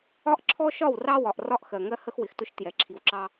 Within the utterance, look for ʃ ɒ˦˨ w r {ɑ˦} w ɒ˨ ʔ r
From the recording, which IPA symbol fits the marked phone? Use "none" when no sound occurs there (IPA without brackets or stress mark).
ɑ˦